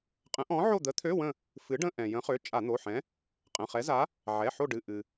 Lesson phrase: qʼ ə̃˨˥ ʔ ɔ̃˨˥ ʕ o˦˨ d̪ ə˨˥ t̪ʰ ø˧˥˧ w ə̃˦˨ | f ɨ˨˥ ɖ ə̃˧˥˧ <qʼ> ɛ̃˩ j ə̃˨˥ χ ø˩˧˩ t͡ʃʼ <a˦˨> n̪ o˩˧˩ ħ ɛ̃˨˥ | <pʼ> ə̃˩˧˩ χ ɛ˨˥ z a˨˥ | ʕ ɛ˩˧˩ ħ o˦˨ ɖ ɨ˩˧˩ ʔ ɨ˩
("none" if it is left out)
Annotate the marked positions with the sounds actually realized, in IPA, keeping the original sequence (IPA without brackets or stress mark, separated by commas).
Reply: ʔ, a˧˩˧, qʼ